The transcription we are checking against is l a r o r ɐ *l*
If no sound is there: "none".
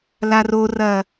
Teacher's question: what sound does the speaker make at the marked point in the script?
none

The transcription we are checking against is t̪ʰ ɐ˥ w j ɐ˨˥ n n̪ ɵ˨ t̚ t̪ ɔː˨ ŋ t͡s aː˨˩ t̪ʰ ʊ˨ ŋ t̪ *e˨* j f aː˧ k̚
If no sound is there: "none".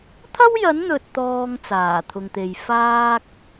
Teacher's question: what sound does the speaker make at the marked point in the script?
e˨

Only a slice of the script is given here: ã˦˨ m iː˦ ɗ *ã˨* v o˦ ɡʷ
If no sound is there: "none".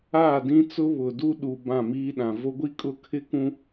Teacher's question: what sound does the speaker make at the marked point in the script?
ã˨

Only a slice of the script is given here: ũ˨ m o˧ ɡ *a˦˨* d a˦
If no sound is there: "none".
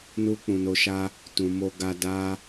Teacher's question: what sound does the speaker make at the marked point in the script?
a˧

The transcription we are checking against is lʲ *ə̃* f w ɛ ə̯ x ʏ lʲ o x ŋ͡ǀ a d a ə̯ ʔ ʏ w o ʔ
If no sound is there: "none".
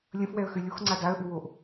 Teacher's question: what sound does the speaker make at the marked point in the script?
ə̃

